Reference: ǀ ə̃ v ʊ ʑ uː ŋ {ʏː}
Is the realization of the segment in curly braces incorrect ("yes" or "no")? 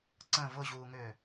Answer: no